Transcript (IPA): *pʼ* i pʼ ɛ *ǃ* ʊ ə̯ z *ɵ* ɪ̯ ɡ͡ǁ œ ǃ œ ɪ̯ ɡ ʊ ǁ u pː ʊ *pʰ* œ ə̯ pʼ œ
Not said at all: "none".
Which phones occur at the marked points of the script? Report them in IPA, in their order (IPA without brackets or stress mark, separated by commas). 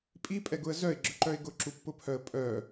pʼ, ɡ, œ, pʰ